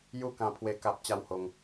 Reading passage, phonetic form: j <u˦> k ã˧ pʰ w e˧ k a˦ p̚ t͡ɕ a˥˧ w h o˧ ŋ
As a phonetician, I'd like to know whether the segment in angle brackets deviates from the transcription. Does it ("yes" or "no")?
yes